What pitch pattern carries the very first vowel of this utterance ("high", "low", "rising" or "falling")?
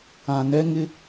low